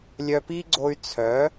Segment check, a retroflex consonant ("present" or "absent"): absent